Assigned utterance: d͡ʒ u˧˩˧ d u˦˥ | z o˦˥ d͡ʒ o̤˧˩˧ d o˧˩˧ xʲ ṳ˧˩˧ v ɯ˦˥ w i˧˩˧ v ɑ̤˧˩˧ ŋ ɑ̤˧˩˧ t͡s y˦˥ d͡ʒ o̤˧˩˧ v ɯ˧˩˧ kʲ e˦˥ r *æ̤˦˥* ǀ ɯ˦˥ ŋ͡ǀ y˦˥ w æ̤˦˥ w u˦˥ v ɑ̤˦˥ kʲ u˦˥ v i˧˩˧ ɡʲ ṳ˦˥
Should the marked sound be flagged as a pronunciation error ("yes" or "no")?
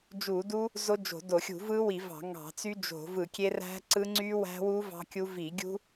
no